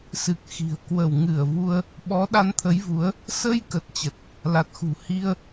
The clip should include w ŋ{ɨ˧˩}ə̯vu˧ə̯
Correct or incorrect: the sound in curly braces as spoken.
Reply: correct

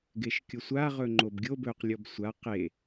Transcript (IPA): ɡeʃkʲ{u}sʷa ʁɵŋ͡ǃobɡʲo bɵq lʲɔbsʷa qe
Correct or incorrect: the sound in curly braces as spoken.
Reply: incorrect: o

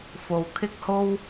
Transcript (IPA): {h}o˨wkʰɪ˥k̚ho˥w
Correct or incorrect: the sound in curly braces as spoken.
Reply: incorrect: f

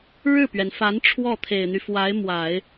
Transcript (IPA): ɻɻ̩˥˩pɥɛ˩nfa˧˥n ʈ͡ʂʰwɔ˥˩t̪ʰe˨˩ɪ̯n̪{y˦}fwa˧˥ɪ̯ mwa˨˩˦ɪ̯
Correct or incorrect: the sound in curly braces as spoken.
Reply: correct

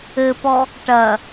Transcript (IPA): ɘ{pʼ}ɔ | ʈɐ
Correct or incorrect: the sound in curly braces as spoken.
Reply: incorrect: p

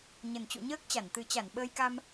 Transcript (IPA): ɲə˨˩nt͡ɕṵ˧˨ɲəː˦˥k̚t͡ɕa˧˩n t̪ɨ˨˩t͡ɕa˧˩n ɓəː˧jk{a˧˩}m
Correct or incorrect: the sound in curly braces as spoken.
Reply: incorrect: a˧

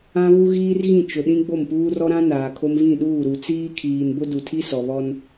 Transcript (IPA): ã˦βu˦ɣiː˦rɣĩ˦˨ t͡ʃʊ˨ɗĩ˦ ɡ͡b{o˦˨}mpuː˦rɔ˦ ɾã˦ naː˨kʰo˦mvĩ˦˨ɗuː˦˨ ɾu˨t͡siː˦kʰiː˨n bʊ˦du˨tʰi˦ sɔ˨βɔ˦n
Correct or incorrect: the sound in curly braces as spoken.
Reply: correct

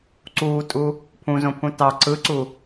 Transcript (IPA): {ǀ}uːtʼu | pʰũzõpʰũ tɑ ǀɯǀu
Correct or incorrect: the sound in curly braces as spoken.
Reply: correct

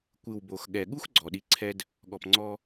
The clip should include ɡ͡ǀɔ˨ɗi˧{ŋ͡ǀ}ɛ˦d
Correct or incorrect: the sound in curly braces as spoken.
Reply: incorrect: ǀʰ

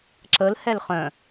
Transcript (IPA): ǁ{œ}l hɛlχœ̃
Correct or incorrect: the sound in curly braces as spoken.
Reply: incorrect: ə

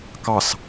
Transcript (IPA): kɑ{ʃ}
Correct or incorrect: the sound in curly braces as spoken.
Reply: incorrect: s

